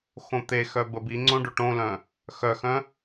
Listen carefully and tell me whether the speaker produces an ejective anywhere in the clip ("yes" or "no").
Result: no